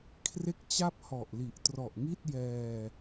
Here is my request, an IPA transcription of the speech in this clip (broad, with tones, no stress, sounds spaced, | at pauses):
kʰ r e˥˩ k̚ t͡ɕ a˥˩ p̚ h ɔ˨˩ ʔ l i˨˩ ʔ t r ɔ˨˩ ʔ ŋ i˥˩ t̚ j ɛː˧